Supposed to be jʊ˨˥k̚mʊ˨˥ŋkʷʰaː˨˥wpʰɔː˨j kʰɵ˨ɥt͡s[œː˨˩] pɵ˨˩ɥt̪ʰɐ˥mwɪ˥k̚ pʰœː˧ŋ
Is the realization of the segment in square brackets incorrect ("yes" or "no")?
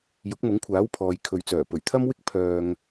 no